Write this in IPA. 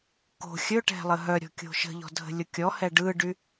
ko̤ xʲɵʈɛ̤lˠə ɦœɾʲɔ̤kʲo̤ ʃə̤ʎɔ̤dʱə̤lʲo kʲɔhɛ ɖɯɖy

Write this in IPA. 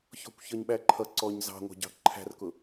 çɔ̤kʷçʌɲɓæǃʰʌ ǀɔɲ zɑ̤ŋʷæ̤ɟɑ̤ ǃʰæ̤rkʊ

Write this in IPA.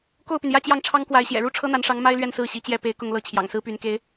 ko˥˩ʊ̯py˩njä˥˧ t͡ɕjɑ˥˩ŋʈ͡ʂʰɑ˥ŋkwa˧˥ɪ̯ɕjɛ̰˨˩ ɻu˥˩ʈ͡ʂʰɤ˥n̪a˧˥nʂɑ˧˥ŋ ma˥ɪ̯lɥɛ˥˧n sɹ̩˥˩ɕi˧˥t͡ɕjɛ˥˩ pe˧˥ɪ̯kʊ˥˧ŋ lɤ˥˩ t͡ɕʰjɑ̰˨˩ŋsɹ̩˥py˧˥nke˧˥ɪ̯

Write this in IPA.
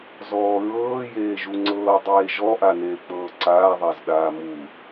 zɔːɹɤː jeːʒuŋ͡ǀɤː dˤeːʒɔ ʔaneːk͡pɤːǀaː ðˤazɗaːmu

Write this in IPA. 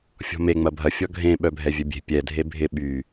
fʲɔ̤me ŋ͡mɐbʱɐ fʲɔɡʱẽ ɓœbʱɛvʲœbʲe̤ pʲɛ dʱebʱɪ ɓy

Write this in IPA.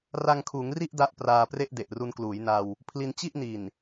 ra˧ŋkʰuː˩˦ŋri˥˩ʔ da˦˥ʔpraː˧pre˥˩ʔ de˨˩ʔru˧nkluː˩˦jna˧w | pʰli˧nt͡ɕi˥˩ʔni˨˩n

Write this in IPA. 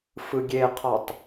fɯɡʲeqʰɔtˤ

